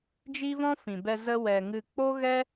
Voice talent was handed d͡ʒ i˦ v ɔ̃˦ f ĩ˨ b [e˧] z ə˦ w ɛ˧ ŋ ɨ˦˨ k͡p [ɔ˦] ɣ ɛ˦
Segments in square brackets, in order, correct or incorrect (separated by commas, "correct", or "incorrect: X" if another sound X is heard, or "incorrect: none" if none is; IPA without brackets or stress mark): incorrect: ɛ˧, incorrect: o˦